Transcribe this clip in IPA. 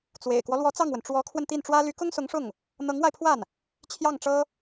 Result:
t͡s w ḛ˨˩ ɪ̯ k w ɔ˦ l w ɔ˧˥ t͡s ɑ˥˩ ŋ w ə˩ n ʈ͡ʂ w ɔ˧˥ kʰ w ə˧ n t̪ i˥˩ n ʈ͡ʂ w ä˥ l y˧˥ k ʊ˥ ŋ s ʊ˧˥ ŋ ʂ ʊ˥˩ ŋ | n̪ ɤ˧˥ ŋ w a˧ ɪ̯ pʰ w a˥˩ n | t͡ɕʰ j ɑ˥˩ ŋ ʈ͡ʂ ɤ˥

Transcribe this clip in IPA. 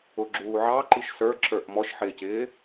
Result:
ʊ ɡ͡ǁ uː ʕ ɑ ǃ i ʃ s ə˞ ǁ ə˞ ʔ m ɔ ʃ ħ ɪː c ɪː

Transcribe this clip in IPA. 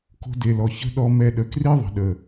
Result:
k o̤˧ d e˨ l ɔ˨ ç ə̤˦ ɗ ɔ˧ m ɛ˧ ɗ ə˨ k r i˦ ðˤ ə̤˨ ɗ ə˨

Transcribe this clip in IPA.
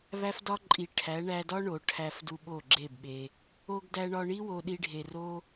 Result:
β æ˦ f d ɒ˦ ǃʼ i˨ ʈʰ æ˨˦ ɳ æ˧ d ɒ˦ ɳ o˨ ʈʰ æ˧ f d u˧ ɓ o˦˨ ɡ͡ǁ e˦˨ b ɓ e˧ | o˧ ɡ d æ˧ ɳ ɒ˧ ɳ i˦ w o˧ ɗ i˧ ɖʱ e˨ r o˦

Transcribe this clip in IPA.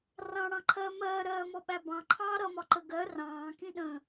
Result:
r ɑ̃ ɽ ɑ̃ ǃʰ ɜː m ɜː ɾ ɜː m ɔ ɓ æ b ɑ̃ ǃʰ ɑː ɾ ʌ m ɒ ǃ ə ɡ ɜ r ɑ̃ː k ĩ ɗ ə̃ː

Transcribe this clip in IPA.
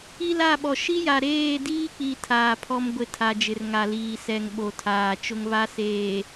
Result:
i˦ l a˦˨ ɓ ɔ˨ ʃ i˦ j a˨ ɾ eː˦˨ d iː˦ k͡p i˨ tʰ aː˨ pʰ ɔ˦ m ɡʷ ɪ˦˨ tʰ a˨ d͡ʒ ɪ˨ r ŋ a˨ l iː˨ s ɛ˨ ŋ ɓ o˨ tʰ aː˨ t͡ʃ ʊ˦ ŋ β a˦ s eː˨

